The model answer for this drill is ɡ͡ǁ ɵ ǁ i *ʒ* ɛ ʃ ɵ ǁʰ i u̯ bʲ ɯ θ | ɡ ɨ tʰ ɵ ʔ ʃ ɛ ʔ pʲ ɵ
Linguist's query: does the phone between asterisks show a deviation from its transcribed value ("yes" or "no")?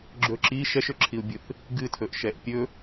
yes